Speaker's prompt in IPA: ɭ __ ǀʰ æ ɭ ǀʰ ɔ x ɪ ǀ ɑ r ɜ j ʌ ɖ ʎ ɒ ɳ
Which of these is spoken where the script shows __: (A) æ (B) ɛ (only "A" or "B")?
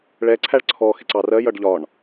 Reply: B